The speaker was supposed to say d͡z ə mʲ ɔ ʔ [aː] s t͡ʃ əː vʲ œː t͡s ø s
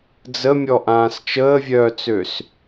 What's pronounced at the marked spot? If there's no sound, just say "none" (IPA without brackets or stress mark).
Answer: ãː